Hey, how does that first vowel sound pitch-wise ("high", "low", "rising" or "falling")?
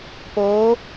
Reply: rising